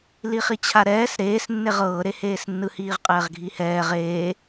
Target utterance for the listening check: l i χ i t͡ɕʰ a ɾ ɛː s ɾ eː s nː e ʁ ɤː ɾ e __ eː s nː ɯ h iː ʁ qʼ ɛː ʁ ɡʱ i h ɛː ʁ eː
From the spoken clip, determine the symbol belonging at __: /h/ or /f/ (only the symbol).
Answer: h